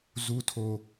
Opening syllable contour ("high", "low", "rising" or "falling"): low